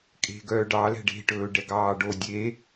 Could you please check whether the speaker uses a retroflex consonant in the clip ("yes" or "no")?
yes